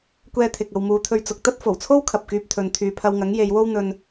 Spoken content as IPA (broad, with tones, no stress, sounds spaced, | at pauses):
kʷ ɛː˧ t̪ʰ ɪ˨ k̚ ɐ˨ w m uː˨˧ t̪ʰ ɵ˧ ɥ t͡s ʊ˨ k̚ t̪ ɐ˥ t̚ f o˨˩ w t͡sʰ o˥ w kʰ ɐ˨ p̚ k yː˧ p̚ t̪ʰ ɵ˨ n t̪ʰ yː˨ pʰ ɐ˧ w ŋ ɐ˨˥ ŋ j e˨˧ j w o˥ w n̪ ɵ˧ n